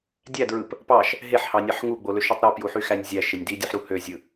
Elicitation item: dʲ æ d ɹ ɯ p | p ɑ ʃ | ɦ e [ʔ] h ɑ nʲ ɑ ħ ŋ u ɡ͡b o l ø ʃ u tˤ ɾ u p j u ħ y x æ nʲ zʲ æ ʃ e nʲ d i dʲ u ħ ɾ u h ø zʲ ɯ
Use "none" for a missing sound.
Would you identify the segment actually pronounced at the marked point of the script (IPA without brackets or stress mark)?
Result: ħ